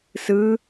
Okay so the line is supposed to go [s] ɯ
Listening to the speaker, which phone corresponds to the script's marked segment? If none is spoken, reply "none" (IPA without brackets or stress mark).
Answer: s